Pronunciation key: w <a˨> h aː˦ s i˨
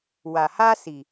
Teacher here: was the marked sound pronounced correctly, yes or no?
yes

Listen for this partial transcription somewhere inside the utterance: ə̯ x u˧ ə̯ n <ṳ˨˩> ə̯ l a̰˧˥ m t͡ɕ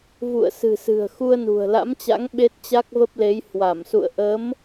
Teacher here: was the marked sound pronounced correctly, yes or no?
yes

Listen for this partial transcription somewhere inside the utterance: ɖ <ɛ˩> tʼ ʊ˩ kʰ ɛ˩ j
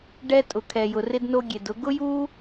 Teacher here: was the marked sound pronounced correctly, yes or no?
no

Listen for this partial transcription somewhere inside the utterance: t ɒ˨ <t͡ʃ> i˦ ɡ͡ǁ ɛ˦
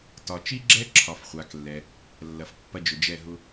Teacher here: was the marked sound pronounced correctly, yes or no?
yes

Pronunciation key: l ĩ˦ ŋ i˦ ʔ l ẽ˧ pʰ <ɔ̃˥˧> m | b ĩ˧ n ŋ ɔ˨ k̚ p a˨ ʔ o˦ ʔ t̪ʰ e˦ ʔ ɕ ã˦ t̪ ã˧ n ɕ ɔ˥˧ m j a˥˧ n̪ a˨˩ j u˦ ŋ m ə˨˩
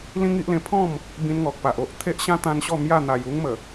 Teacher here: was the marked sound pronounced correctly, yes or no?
yes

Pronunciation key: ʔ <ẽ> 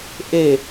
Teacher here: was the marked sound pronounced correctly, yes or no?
no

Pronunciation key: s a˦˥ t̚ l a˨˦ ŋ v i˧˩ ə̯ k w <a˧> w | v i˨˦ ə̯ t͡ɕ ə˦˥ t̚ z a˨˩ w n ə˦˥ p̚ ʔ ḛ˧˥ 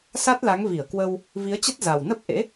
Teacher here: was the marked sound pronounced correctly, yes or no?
no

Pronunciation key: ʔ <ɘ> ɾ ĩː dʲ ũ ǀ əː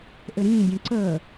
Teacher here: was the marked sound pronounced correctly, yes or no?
yes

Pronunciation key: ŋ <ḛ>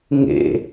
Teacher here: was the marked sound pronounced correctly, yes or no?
yes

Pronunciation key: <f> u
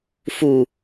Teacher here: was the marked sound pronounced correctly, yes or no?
yes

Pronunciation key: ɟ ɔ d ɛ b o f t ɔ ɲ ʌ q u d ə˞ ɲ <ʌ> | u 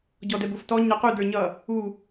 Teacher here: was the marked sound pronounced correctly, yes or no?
yes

